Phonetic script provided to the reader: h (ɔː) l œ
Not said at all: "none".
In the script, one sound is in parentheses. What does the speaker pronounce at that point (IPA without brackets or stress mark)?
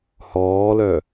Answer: ɔː